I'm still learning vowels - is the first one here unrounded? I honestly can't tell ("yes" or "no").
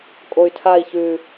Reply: no